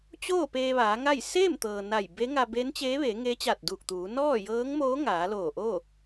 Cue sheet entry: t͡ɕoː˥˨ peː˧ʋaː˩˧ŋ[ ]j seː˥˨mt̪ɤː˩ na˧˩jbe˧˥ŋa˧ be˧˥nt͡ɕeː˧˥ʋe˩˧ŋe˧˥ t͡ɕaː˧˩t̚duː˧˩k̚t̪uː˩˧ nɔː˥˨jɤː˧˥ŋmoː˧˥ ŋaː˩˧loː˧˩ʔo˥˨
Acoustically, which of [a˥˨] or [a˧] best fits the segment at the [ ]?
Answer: a˥˨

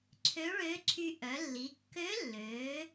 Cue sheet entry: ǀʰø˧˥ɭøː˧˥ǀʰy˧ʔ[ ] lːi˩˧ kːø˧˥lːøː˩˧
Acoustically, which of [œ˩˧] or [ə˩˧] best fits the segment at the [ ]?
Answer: œ˩˧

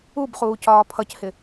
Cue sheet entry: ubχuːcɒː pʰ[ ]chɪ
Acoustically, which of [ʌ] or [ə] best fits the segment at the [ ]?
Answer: ʌ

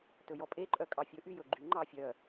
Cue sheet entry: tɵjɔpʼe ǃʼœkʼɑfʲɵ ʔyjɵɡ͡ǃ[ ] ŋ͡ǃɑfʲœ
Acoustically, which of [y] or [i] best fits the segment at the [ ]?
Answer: y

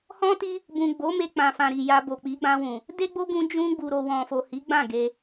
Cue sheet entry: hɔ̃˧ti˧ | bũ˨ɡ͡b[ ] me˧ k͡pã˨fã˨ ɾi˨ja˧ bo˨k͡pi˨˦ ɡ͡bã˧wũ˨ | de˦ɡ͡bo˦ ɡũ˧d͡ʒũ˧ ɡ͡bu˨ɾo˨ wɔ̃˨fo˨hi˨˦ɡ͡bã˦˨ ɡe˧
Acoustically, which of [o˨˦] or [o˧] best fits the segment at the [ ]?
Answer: o˨˦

